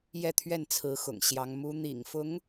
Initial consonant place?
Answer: palatal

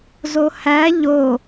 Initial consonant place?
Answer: alveolar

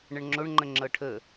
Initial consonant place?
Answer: retroflex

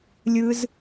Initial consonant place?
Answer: alveolar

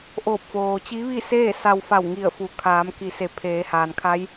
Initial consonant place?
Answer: glottal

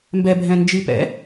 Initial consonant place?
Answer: labial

